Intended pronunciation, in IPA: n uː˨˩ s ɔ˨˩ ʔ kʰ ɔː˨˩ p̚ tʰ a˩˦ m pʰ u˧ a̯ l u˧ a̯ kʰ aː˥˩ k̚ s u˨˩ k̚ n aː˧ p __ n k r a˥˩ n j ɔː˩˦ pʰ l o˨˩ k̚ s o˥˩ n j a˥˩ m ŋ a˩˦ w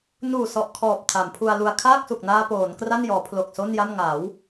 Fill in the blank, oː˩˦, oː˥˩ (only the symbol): oː˩˦